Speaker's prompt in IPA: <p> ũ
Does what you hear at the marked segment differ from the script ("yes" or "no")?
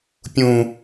yes